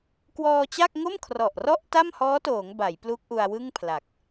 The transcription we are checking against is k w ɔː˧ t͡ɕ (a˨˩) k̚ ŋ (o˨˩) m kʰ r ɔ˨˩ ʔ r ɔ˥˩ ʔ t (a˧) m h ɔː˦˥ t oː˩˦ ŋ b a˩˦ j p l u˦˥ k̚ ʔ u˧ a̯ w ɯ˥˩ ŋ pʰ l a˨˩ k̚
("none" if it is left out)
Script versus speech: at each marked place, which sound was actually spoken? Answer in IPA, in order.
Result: a˥˩, o˥˩, a˥˩

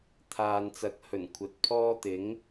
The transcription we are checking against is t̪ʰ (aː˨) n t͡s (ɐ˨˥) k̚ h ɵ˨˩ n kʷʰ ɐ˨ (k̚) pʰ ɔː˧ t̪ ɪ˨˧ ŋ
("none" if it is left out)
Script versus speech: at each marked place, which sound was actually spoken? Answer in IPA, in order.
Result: aː˨, ɐ˨˥, t̚

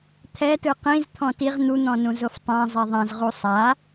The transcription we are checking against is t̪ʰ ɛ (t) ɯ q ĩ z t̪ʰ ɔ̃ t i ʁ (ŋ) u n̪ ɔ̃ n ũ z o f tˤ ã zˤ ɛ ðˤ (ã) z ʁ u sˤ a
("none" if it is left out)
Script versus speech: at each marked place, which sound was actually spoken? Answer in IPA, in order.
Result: t, n̪, ã

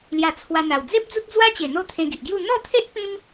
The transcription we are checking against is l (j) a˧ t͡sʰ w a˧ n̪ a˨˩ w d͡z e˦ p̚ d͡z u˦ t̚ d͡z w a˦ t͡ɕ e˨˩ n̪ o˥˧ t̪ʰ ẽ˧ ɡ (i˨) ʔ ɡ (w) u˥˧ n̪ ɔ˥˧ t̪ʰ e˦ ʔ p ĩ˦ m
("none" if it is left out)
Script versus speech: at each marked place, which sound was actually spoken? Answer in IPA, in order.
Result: j, i˨, j

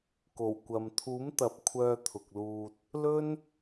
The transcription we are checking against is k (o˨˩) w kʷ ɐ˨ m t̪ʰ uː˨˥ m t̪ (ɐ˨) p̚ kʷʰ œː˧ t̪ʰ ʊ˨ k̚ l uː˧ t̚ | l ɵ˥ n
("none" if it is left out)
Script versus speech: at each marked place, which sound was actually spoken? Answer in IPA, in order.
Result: o˨˩, ɐ˨

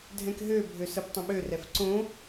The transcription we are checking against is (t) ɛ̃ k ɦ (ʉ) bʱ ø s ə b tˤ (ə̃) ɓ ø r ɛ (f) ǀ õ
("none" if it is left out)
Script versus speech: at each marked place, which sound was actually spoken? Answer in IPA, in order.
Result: dʱ, ø, ə̃, f

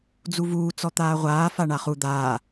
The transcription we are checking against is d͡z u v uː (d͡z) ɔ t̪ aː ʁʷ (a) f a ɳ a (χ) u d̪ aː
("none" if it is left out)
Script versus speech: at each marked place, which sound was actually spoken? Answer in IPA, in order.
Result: t͡s, aː, χ

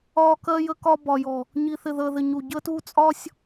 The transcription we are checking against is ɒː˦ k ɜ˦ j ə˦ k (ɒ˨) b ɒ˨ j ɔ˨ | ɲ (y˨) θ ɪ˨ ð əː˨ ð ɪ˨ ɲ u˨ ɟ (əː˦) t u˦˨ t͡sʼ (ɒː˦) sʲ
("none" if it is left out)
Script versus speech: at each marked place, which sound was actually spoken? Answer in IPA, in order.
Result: ɒ˦, i˨, əː˦, ɒː˦

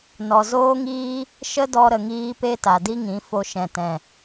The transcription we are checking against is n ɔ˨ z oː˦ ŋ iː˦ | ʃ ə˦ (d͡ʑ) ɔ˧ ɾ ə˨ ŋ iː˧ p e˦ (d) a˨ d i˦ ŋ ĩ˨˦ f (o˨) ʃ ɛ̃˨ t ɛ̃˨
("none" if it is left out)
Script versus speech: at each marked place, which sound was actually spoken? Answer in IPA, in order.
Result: d, t, o˧

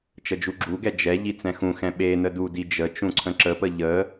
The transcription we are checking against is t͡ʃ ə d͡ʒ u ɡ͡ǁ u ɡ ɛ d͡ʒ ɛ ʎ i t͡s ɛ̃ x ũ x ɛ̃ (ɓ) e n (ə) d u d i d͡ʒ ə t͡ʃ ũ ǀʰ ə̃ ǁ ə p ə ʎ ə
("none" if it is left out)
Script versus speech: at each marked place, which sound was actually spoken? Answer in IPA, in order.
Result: ɓ, ə

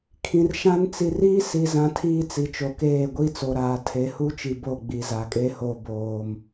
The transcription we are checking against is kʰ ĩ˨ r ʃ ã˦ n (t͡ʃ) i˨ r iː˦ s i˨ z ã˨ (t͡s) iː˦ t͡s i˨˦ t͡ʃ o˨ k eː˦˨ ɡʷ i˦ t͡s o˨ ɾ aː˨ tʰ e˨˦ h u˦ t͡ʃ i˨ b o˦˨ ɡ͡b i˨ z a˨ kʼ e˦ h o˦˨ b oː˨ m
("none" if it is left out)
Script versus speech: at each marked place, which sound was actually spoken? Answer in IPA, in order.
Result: t͡s, tʰ

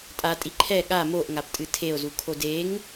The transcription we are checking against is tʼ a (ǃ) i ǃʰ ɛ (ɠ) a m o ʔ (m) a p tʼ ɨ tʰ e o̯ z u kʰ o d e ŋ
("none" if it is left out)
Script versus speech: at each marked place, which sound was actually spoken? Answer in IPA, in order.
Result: tʼ, ɠ, ŋ

